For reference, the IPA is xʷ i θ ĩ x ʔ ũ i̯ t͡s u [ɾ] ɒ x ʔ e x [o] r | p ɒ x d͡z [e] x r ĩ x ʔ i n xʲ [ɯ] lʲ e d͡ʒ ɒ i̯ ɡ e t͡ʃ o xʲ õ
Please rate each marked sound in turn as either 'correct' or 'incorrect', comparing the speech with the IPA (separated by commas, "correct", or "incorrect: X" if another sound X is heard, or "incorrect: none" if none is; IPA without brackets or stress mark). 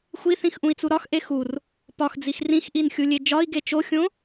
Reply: correct, incorrect: u, incorrect: i, incorrect: u